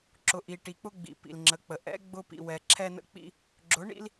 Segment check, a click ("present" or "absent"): present